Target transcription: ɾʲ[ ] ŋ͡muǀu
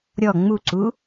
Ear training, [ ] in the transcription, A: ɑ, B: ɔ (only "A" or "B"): B